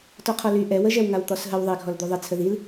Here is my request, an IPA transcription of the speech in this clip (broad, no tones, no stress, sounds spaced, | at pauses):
t ɔ qʰ ɔ l y ʔ ɛ w ə ʒ ɛ w ŋ a w t̪ ɔ s ɦ ə w ðˤ i ɡʱ ɔ l d̪ u ðˤ i t͡sʰ ə ð i l